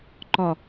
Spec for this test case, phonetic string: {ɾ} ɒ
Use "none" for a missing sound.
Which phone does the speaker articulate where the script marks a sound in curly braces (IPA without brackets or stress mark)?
ǃ